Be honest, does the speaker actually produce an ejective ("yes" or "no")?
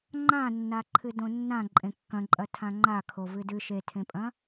yes